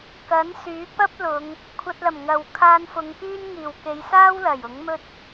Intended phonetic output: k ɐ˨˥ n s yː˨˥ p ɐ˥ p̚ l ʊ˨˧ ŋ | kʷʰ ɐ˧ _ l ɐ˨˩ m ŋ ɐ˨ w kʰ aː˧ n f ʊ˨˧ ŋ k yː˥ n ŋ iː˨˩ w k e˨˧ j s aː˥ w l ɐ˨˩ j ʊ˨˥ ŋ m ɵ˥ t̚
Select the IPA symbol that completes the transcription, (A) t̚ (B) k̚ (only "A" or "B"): A